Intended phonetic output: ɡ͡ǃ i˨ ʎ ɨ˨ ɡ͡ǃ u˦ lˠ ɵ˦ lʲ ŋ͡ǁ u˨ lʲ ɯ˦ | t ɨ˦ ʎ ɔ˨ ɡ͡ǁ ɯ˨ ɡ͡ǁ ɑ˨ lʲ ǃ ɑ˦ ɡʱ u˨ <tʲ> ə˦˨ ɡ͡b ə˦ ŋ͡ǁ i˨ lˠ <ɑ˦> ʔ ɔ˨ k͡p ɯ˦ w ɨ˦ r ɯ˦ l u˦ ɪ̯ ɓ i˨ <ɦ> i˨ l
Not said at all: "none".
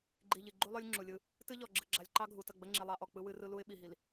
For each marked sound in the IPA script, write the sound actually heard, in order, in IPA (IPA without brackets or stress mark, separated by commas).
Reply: t, ɑ˦, ɦ